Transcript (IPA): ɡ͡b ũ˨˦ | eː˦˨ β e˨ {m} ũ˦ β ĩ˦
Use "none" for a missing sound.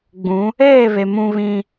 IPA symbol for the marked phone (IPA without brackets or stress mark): m